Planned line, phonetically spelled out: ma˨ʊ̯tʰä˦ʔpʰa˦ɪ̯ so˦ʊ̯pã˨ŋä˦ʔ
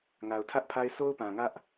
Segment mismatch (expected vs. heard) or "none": m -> ŋ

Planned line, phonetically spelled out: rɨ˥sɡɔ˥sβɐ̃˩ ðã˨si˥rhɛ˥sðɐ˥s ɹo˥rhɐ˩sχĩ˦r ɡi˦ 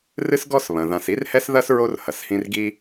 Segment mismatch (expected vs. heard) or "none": χ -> h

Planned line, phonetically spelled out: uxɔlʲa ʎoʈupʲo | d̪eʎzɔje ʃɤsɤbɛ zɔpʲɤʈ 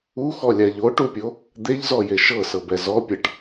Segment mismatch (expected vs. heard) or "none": none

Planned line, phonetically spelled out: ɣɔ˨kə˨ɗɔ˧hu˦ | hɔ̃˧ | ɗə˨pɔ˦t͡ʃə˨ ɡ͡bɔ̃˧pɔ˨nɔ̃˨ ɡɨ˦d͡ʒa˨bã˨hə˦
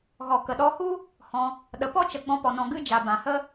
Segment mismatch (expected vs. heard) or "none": none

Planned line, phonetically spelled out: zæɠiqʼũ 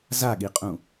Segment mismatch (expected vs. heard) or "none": æ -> a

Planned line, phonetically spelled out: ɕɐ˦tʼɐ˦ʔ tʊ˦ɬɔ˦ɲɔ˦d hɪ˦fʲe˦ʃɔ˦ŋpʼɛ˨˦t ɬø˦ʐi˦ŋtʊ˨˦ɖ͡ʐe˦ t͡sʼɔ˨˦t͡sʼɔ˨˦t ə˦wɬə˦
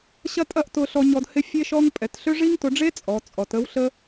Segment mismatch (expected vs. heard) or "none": none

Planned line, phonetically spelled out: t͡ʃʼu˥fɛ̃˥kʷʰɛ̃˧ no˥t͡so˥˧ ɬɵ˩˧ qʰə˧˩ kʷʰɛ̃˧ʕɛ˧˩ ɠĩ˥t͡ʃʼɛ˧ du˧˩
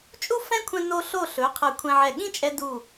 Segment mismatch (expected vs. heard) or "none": t͡s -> ɬ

